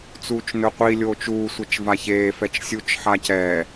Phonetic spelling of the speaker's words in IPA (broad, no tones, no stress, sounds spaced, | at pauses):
t͡s uː t͡ʃ n ɵ qʷ i lʲ oː t͡ʃ uː sʷ œ t͡ʃ v a ç eː f ɛ t͡ʃ sʲ u t͡ʃ ħ a c ɛː